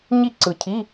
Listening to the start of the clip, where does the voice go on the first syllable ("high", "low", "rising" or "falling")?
falling